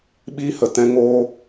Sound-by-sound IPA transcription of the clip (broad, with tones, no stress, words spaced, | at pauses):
ɓiː˦hə˨ tɛ̃˦ŋoː˦